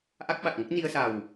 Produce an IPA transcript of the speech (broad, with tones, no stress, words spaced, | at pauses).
ʔa˦˥k̚ɓa˨˩k̚ŋə˦˥k̚ ni˧ə̯sa˨˩w